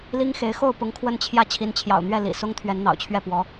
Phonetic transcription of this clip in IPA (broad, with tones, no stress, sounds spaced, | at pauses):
l i˥ ŋ x e˧˥ ɪ̯ x o˥˩ ʊ̯ p ʊ˧˥ ŋ kʰ w ə˥˧ n t͡ɕʰ j ä˥˩ t͡ɕʰ i˧˥ n t͡ɕʰ j ɑ̰˨˩ ʊ̯ n̪ ɥ ɛ˥˩ l ḭ˨˩ s ʊ˥ ŋ t̪ʰ ɥ ɛ˧˥ n n̪ ɑ̰˨˩ ʊ̯ t͡ɕʰ ɥ ɛ˥˩ p w ɔ˧˥